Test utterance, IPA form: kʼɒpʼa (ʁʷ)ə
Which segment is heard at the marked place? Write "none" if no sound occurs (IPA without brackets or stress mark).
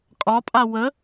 w